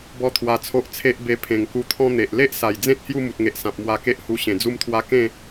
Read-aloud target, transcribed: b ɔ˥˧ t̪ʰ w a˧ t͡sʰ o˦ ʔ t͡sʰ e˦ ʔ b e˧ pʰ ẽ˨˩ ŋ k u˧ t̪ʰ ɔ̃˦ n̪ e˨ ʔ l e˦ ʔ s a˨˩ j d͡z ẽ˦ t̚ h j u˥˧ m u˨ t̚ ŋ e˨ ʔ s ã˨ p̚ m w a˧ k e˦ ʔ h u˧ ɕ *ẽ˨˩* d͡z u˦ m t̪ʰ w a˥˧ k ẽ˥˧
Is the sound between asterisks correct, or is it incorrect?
correct